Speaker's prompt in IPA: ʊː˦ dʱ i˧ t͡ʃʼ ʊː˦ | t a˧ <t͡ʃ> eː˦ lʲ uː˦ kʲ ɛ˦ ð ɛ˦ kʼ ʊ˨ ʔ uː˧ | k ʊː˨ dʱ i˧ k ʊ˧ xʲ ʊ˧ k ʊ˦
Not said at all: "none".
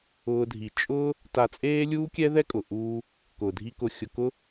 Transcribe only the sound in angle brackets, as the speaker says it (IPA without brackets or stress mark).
t͡sʼ